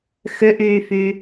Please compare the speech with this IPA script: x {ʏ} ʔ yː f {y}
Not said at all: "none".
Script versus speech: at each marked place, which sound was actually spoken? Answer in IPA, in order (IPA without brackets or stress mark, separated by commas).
ʏ, y